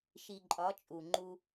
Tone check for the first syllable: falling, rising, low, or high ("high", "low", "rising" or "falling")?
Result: low